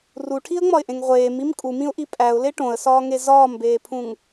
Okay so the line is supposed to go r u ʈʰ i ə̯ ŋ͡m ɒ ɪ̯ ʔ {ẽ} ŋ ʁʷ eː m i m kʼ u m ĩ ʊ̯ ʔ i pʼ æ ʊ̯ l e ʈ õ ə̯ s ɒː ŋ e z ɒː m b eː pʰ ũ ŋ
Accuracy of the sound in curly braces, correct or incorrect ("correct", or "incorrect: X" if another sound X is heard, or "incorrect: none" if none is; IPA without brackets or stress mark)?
correct